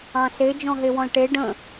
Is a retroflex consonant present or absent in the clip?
present